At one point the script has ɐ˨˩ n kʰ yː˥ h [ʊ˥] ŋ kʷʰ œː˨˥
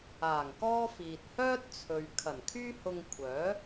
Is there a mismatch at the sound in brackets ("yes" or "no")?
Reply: yes